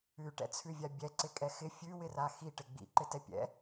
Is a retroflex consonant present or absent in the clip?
present